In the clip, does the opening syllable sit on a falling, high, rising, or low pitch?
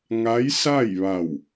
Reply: rising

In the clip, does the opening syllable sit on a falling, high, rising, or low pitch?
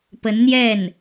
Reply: rising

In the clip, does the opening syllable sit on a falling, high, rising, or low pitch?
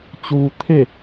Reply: low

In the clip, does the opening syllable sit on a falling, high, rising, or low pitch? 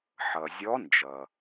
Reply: low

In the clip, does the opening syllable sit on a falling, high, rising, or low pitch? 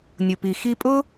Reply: low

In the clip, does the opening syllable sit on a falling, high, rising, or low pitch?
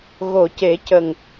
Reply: low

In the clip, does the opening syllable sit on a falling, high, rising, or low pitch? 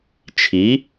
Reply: rising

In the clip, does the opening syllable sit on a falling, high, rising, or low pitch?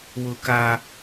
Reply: high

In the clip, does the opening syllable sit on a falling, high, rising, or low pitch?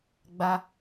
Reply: high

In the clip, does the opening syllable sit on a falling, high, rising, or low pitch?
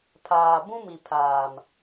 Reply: low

